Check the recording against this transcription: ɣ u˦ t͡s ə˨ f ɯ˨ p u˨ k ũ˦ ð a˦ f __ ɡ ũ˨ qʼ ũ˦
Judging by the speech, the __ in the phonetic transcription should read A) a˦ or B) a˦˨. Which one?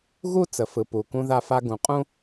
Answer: A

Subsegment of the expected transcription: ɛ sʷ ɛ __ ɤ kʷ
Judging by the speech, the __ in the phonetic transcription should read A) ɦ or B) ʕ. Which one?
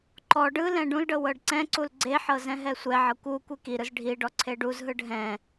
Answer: B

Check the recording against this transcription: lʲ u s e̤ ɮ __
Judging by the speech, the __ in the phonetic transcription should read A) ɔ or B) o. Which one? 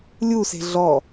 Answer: A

